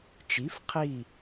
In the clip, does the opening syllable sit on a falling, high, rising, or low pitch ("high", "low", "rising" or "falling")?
rising